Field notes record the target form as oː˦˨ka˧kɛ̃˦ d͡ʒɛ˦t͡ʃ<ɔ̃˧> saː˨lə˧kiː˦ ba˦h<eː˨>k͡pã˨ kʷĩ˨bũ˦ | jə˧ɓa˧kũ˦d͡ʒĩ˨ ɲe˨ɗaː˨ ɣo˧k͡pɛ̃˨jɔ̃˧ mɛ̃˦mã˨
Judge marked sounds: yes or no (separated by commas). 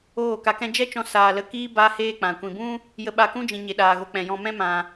yes, no